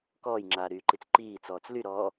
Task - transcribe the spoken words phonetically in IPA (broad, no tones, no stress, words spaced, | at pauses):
kɔːjŋ͡ǁaːɾyːǃit͡s ǃiːt͡sɔːt͡s lyɾɔː